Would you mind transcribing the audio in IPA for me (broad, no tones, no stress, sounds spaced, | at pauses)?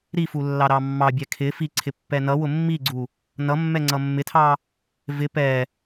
ɾ i f u lː ɑ ɾ ɑ mː ɑ bʲ ɛ kʰ ɪ f i ǀʰ ɪ pː ɛ n ʌ w ʊ mː i ɡ͡ǀ u | n ʌ mː ɛ ŋ͡ǀ ʌ mː ɪ tʰ ɑ | v ɪ p ɛ